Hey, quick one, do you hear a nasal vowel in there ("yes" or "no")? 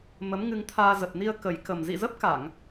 no